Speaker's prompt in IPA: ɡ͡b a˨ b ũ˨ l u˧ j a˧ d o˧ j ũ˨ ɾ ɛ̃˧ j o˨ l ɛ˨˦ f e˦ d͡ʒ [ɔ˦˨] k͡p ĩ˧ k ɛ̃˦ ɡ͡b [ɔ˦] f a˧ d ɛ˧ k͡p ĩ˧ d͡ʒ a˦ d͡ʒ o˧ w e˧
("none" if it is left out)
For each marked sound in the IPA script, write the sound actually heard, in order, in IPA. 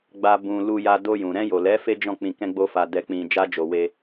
ɔ̃˦˨, o˦

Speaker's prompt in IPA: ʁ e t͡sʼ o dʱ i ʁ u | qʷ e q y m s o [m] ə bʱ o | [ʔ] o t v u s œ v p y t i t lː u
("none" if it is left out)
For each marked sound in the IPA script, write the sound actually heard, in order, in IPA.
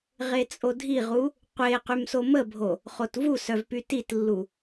m, χ

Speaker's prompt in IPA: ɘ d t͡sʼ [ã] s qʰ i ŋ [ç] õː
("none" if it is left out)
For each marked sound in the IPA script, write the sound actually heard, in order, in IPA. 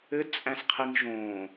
æ̃, ʒ

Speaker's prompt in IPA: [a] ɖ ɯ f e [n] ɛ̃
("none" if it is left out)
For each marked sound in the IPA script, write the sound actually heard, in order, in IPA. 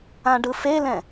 ã, l

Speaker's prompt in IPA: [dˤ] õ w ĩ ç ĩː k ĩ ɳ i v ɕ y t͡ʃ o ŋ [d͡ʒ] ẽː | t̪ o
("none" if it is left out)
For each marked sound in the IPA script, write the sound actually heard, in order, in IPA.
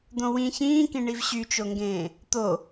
d̪, ɡ

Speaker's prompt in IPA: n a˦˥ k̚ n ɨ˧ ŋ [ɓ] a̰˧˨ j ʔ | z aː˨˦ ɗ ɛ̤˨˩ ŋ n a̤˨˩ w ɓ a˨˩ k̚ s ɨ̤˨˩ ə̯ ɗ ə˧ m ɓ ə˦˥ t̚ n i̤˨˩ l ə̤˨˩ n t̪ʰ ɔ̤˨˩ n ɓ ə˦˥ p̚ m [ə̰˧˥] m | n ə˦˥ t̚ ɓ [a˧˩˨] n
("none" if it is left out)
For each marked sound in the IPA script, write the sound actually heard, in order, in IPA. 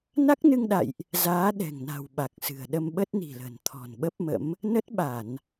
ɗ, ə̰˧˥, a˧˩˨

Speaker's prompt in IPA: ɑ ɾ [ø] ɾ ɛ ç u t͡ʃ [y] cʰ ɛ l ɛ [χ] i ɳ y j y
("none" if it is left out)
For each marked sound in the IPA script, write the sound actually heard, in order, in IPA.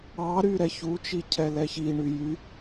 y, i, ç

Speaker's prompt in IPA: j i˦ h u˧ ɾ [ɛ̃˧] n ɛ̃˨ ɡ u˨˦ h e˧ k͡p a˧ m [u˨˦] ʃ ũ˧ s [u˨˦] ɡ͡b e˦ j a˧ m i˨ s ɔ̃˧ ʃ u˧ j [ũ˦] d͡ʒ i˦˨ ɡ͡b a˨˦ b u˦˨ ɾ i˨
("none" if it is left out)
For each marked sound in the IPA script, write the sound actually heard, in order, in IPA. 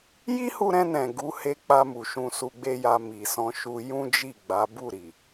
ɛ̃˧, u˨, u˧, ũ˦

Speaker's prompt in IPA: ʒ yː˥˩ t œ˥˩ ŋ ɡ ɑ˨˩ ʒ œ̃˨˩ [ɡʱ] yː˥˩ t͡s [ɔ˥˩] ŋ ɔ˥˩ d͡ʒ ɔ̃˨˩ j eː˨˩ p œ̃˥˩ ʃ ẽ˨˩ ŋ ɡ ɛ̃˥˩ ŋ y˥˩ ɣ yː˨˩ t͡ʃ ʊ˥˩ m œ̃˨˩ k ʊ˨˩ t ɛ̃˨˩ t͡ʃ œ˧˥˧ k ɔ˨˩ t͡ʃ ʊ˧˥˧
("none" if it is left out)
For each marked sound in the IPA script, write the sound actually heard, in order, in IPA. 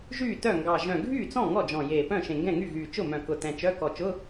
ɡʱ, ɔ̃˥˩

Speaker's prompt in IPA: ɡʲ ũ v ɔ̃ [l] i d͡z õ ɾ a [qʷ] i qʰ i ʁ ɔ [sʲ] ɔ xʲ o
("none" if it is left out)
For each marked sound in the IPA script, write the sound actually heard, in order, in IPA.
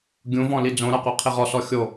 l, qʷ, s

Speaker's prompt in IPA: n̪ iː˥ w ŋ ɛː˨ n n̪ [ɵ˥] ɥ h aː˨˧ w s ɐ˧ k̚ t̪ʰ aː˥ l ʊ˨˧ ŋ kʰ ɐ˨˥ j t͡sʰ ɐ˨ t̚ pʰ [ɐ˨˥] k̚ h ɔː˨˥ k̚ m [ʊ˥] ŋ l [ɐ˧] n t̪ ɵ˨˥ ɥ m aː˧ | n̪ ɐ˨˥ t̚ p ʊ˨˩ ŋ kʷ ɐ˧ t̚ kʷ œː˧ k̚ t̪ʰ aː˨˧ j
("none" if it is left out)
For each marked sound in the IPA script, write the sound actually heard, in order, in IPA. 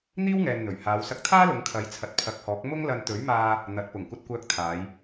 ɵ˨˩, ɐ˨˥, ʊ˥, ɐ˧

